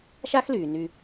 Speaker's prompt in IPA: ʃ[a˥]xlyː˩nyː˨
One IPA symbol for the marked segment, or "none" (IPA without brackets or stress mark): a˥